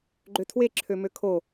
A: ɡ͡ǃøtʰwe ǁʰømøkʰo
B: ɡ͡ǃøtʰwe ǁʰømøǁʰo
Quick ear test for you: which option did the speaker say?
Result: A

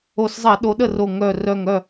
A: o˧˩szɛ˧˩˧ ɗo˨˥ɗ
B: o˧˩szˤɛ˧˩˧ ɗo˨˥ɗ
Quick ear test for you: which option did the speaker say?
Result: B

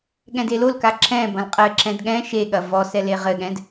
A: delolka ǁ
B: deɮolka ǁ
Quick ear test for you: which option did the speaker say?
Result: A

